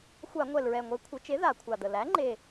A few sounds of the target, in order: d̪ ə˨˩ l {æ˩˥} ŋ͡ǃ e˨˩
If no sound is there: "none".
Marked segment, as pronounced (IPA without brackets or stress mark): æ˩˥